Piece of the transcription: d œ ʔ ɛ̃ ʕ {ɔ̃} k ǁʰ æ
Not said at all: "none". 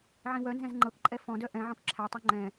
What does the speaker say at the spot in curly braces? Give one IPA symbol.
ɔ̃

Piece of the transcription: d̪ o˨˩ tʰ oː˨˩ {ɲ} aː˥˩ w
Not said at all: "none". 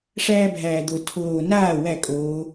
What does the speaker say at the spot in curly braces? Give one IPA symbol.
n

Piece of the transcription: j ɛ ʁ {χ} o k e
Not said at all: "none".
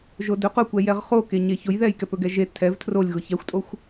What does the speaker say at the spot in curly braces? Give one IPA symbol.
χ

